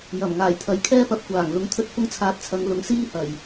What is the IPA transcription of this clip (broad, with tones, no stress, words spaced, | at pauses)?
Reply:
jɐ˨˩mŋaː˨˩jt̪ʰɐ˨˧j kʰɛː˥pɐ˧p̚ kʷaː˨˩ŋ lʊ˨˥ŋt̪ʰɵ˧t̚ fʊ˥ŋt͡sʰaː˧t̚ t͡sʰɐ˨˧ŋ lʊ˨˥ŋsiː˥hɐ˨˩j